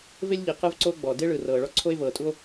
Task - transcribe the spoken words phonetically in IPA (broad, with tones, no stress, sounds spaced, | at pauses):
v e˥ lʲ ʎ i˩ q ɯ˥ v ǀ o˥ ɡ͡b ɔ˩ d e˥ ɭ ɯ˩ r ɤː˩ ɭ ɔ˥ ǀʰ o˥ e̯ v ɤː˩ tʼ u˥ o̯